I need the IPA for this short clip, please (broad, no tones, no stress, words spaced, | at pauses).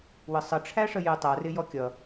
wəsˤə ʈ͡ʂʰæʂəjɪ tˤʌ rɪjɔkʲʌ